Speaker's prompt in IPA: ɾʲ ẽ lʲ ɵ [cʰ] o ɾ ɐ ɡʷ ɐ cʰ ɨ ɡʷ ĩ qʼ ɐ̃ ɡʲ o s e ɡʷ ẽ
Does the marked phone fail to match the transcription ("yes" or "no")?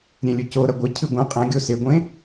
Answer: yes